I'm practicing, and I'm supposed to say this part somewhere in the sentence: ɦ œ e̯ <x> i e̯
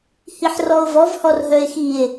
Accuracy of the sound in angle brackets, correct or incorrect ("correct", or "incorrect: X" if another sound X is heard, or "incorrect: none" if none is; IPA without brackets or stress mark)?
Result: correct